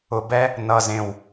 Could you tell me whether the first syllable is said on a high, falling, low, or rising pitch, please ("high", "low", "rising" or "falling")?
low